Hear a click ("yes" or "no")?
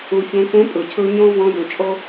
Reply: no